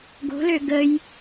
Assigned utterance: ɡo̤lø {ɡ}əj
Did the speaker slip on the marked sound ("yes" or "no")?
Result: no